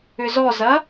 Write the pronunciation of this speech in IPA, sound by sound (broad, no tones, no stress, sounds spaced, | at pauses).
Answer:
ʏ z ɔ z ɐ